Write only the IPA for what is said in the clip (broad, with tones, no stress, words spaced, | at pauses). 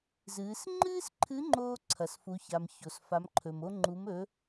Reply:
zɨː˩˧s ŋ͡ǃɨː˥sǃʰɨ˧˥ŋ͡ǃoː˧ ǀʰɐ˩sfu˩˧ça˩m ço˩sfa˩˧mǃʰɵ˩mo˧ ŋ͡ǃu˩˧mɵ˩˧